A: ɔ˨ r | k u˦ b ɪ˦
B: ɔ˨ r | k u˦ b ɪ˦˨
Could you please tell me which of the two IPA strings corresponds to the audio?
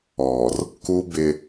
A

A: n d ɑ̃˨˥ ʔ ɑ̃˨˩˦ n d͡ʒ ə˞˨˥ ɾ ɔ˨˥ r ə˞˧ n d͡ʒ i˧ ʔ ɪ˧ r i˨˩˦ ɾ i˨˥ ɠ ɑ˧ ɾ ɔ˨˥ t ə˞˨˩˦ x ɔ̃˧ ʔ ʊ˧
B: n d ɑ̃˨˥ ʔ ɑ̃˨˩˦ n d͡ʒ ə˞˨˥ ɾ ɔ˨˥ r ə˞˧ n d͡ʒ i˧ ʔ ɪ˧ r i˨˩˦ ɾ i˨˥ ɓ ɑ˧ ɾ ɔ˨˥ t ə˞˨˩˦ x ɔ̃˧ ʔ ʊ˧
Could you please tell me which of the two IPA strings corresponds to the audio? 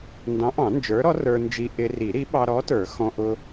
B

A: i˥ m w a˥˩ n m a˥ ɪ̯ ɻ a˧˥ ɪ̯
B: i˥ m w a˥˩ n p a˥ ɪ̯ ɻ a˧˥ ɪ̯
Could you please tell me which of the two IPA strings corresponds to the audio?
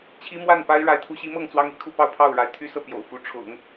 B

